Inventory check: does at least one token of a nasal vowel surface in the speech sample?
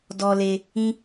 yes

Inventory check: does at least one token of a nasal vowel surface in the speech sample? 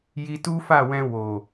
yes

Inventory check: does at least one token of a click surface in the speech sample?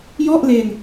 no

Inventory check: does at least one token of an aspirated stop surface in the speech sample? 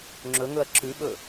no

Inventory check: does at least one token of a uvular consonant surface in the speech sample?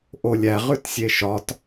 yes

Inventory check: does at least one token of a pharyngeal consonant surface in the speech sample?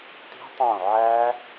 yes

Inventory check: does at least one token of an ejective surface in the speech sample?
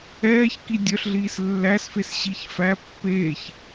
no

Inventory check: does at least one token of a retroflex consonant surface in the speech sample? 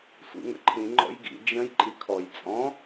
no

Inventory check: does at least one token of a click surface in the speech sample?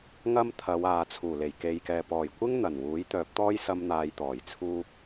no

